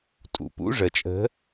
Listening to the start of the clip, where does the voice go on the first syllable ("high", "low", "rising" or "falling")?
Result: low